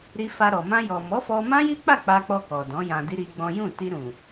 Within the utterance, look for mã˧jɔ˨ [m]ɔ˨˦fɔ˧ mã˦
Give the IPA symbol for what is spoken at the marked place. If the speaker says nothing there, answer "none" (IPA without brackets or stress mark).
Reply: m